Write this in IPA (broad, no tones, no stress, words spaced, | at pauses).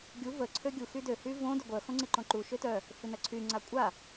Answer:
ɡʲu və ǀʰøɡʲu xydø hyvõ dœɡʷœ xõŋ͡ǀɪǃõǃu ʃøtœ | fɪnɐǀʰy ŋ͡ǀakʷʼa